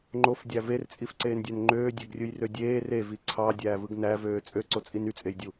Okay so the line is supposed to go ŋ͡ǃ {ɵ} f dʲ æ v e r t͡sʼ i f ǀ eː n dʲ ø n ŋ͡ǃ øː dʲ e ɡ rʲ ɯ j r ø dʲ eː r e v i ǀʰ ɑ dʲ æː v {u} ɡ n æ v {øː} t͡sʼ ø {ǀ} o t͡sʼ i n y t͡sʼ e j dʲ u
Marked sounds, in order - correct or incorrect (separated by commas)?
incorrect, incorrect, correct, correct